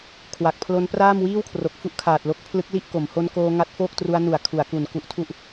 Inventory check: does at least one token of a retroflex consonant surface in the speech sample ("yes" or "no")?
no